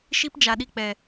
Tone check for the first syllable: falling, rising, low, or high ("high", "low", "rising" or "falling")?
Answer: high